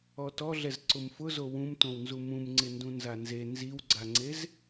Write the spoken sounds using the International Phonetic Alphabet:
ɔ t ɔ ɮ ɛ z ǀ ʊ m f ʊ z o w ũ m t õ w n z u m ũ m ŋ͡ǀ ɪ n d ũ n z a n z e n z i w ɡ͡ǀ a ŋ͡ǀ e z

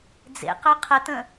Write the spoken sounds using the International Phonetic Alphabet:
d͡z ḛ q œ qʰ ə t̪ ə̃

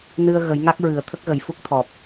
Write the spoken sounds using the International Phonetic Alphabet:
n ɨ˧ ə̯ ɣ ə˨˩˦ j ŋ a˦˥ k̚ ɹ ɨ˨˩˦ ə̯ t̪ʰ ə˦˥ k̚ ɣ ə˨˩ j f u˦˥ k̚ t̪ʰ ɔ˨˩ p̚

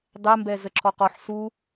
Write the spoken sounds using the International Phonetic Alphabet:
dˤ ɛ m b ɛ z ə ǁʰ ɔ q ɔ ħ s u

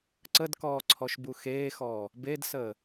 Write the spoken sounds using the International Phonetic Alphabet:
ǀ ə d k ɔː ǀʰ ɔ ʃ b u x eː x ɔː | b e d s əː

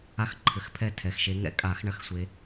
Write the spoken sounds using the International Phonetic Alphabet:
a˥˩ x ǃʰ ɘ˨˩˦ x pʰ ɛ˥˩ tʰ ɛ˨˩ x ʃ e˨˦ ŋ ɛ̰˨˩˦ kʼ a˨˩˦ x ɳ ɐ˨˦ x sʷ e˨˦

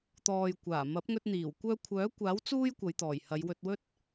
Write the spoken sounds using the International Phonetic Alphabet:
t̪ ɔː˨ j kʷ aː˨˩ m ɐ˨˥ p̚ ŋ ɵ˧ t̚ n̪ iː˨˩ w kʷ œː˧ kʷʰ œː˨˥ kʷ aː˨˥ w t͡s uː˥ j kʷ ɐ˨˧ j t̪ ɔː˨˩ j h ɐ˨˧ j w ɵ˧ t̚ w ɵ˥ t̚

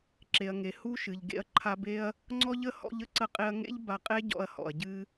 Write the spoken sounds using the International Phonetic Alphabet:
ǁ e˨ ɐ̯ ŋ e˨ h u˦ ʃ ɨ˨ ʎ ɡ ḛ˧ ɐ̯ ǃʰ a˧ b e˦ ɐ̯ | ŋ͡ǀ ɔ˧ ʎ ə˧ h ɔ̰˧ ʎ ə˦ ǀ ə˧ qʼ e˧ ɐ̯ ŋ ḛ˦ ʎ b a˧ qʼ e˦ ɟ ɔ̰˧ ɐ̯ h ɔ̰˨ ɐ̯ ɟ ɨ˧

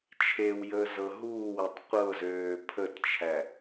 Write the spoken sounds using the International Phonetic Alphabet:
t͡ʃʰ e w j əː z ɤ ɦ uː w e tˤ qʷ ɤ z øː pʰ ə t t͡ʃʰ æ

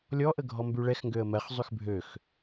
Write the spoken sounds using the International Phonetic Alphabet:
lʲ ɔ ʔ ə ɡʱ ɔ m b y ɭ ɛ x ŋ ɡ ø ə̯ m ɜ χ zˤ y x bʱ ø x

